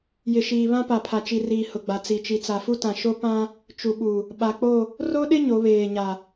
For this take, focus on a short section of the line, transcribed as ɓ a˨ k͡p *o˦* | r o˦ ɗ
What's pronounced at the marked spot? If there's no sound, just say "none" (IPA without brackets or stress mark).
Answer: o˦˨